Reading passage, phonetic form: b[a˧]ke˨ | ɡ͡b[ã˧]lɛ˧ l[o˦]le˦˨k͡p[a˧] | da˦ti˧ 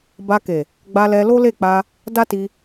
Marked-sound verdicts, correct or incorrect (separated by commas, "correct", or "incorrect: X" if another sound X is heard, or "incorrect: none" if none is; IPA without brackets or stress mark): correct, incorrect: a˧, correct, correct